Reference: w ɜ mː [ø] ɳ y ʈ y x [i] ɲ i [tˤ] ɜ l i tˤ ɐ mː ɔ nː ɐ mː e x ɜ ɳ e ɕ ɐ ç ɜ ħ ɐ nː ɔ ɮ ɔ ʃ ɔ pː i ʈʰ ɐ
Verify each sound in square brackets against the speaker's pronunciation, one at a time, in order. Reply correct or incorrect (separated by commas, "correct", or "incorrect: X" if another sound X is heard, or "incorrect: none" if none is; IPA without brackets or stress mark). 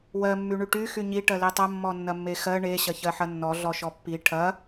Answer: incorrect: y, incorrect: y, incorrect: ʈ